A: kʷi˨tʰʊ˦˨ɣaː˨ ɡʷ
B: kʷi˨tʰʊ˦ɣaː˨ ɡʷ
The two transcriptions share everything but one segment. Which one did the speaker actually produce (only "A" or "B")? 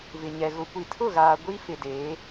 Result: A